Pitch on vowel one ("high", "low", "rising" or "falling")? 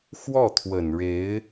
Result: falling